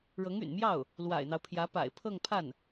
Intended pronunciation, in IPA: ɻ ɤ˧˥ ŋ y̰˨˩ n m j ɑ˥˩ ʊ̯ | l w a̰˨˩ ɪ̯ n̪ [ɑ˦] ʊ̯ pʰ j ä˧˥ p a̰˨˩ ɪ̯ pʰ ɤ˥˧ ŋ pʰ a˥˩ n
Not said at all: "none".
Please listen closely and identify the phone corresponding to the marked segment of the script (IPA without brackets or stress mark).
ɑ˦